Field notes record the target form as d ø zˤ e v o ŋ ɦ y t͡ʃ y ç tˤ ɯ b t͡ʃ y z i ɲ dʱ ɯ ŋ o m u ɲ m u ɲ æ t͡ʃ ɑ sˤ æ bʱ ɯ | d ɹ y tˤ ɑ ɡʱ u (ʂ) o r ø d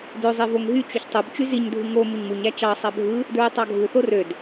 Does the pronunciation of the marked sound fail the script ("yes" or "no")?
yes